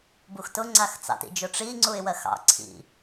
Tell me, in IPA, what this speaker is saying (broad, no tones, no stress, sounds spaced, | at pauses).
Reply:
b u x t ʊ ŋ͡ǀ a x t͡s ɑ̰ t ḭ d͡ʒ ʊ ʈ͡ʂ i ŋ͡ǀ u ɪ̯ w ɜ x ɑ̰ ǀʰ ḭ